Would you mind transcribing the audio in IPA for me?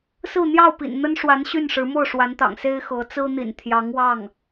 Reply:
s ɹ̩˥˧ n̪ j ɑ˥˩ ʊ̯ p ḭ˨˩ n n̪ ə˥ n ʂ w a˧˥ n ɕ y˥˩ n ʂ ɻ̩˧˥ m o˥˩ ʊ̯ ʂ w a˧˥ n t̪ ɑ̰˨˩ ŋ s e˥ ɪ̯ x ɤ˧˥ t͡s ɹ̩˥ n̪ ḭ˨˩ n t̪ʰ j ɑ˧˥ ŋ w ɑ˥˩ ŋ

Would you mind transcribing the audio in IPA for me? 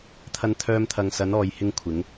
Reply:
t̪ʰ ɐ˧ n t̪ʰ œː˧ m t̪ʰ ɐ˨ ŋ s ɐ˨˧ n ɔː˨ j h ɪ˧ ŋ kʷʰ ɪ˨˧ ŋ

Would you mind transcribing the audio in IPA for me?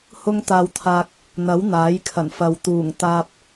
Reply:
h ʊ˥ ŋ t̪ aː˧ w t̪ʰ aː˧ k̚ | n̪ ɐ˨˥ w n̪ aː˨˥ j kʰ ɐ˨˩ n f ɐ˨ w t̪ uː˨˩ ŋ t̪ aː˧ p̚

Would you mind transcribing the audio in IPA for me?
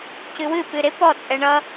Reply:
c ɨ w ɨ p ɨ ɾ ɪ p ɔ t͡sʼ ɛ ɳ ʌ

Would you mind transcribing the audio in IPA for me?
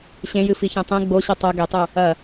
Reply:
ɕ ẽ j ɨ f i ç ẽ tˤ ẽ ɡ͡b o ɕ ɨ tˤ o ɡ e tˤ u | ɐ

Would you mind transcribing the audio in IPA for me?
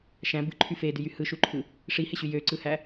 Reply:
ʃ æ̃ b ɯ ǃʰ y f e d y j y h ɯ ʃ u ǃʰ ɯ | ʂ i h e ɕ y j ø ǀ ɯ h æ

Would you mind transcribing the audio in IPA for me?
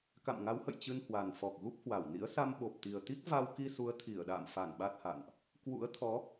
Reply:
k a̰˧˨ m ŋ a˨˦ w h ə̰˧˨ j t͡ɕ ɨ˧ n h w a˨˩ n f ɔ˨˩ k̚ ɣ u˦˥ p̚ h w a˧˩ w n ḭ˧˥ ə̯ s a˧ m ɓ o˨˩ p̚ t̪ i˨˩ ə̯ t̪ i˦˥ k̚ v a˧ w k i˧ s u˨˦ ə̯ t̪ʰ i˧˩ ə̯ ɗ a̰ː˧˨ m f a˧˩ n ɓ a˦˥ t̚ h a̰˧˨ n ʔ | k w ṵ˧˥ ə̯ t̪ʰ ɔ˨˦

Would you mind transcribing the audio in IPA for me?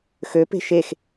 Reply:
x ø p e̤ ʃ e x

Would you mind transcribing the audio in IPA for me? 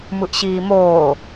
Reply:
m ɯ ʔ ɕ iː m oː

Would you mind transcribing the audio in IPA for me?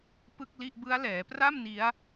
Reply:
p ɯ˥˩ k̚ l i˥˩ ʔ b ɯ˦˥ a̯ l ɛː˩˦ p r a˥˩ m n i˦˥ a̯

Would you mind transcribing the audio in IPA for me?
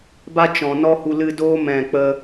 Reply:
b a˦ t͡ʃ ɔ̃˨ n ɔ˦ h u˧ l ɨ˧ d oː˦ m ɛ̃˦˨ k͡p ə˦

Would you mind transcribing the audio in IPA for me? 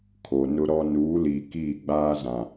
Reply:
kʰ o˨ n ʊ˦ ɾ ɔ˦ n uː˨˦ l iː˨ k iː˦˨ ɡ͡b aː˦ z ã˨

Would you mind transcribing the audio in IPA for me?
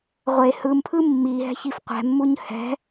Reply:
ʁʷ e h ɯ m pʰ ɯ mː i ɦ ɛ̤ ç i f qʷ ɛ̤ mː u ɲ h ɛ̤

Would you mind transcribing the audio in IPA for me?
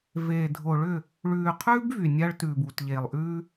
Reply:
v eː˨ dʱ o˨ ɭ ʏ˦˨ | ɭ ʉː˨ qʰ ʉː˦ b v y˨ nʲ a˦ ɭ t ʉː˨ b u˨ t ʎ eː˨ lˠ ʔ ʉː˦

